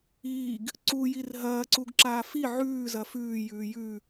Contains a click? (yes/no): yes